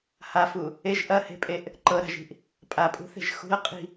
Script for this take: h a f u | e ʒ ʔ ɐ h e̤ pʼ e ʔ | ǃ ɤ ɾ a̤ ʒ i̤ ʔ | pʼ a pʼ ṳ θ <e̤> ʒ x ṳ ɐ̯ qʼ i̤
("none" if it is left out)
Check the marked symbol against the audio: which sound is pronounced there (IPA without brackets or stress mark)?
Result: e̤